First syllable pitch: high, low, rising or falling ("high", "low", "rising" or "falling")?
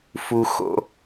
low